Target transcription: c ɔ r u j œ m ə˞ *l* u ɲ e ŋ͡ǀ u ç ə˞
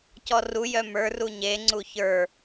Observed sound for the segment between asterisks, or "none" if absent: r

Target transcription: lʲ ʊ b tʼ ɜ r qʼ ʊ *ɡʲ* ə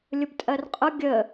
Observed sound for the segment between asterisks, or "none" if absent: ɡʲ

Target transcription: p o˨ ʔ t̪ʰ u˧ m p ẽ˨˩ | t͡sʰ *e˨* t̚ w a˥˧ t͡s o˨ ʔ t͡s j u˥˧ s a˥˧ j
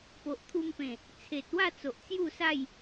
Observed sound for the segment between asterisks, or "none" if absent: e˨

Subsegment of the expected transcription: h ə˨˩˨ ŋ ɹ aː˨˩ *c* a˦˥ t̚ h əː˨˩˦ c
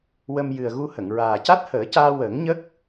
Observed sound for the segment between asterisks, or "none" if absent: c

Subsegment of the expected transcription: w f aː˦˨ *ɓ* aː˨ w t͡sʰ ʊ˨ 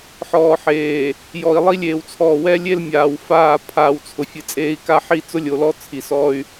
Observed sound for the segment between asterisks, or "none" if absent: pʰ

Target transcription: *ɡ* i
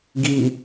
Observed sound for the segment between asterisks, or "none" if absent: ɡ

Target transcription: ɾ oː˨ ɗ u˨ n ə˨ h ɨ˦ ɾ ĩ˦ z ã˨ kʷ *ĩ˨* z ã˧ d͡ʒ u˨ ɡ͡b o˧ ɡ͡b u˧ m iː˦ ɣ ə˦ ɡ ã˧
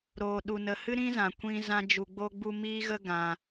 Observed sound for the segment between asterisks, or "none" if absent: ĩ˧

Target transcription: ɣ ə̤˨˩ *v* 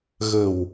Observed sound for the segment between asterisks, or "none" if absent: w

